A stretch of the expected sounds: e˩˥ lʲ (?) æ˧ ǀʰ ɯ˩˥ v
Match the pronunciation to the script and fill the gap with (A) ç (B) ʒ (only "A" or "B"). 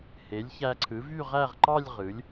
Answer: A